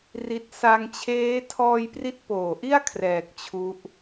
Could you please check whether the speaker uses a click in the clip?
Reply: no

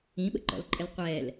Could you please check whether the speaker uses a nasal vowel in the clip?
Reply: yes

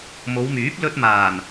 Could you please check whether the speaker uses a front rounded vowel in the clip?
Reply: yes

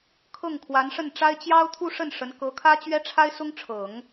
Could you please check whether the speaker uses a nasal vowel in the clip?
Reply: no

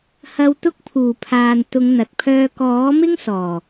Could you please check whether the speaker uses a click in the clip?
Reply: no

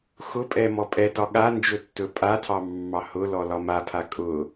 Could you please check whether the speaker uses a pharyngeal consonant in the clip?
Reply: no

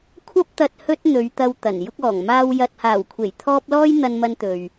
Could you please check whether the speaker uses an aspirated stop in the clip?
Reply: yes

